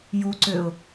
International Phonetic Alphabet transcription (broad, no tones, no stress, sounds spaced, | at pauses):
j u ǀ ø ʊ̯